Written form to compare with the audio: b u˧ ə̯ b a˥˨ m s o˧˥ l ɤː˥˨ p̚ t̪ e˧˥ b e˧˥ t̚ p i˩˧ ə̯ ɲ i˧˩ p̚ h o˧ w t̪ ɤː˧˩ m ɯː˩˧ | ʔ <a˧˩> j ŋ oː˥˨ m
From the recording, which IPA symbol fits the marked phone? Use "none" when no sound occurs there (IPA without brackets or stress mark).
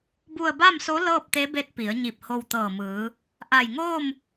a˧˩